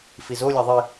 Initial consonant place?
labial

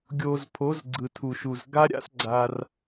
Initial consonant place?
velar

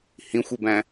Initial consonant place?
glottal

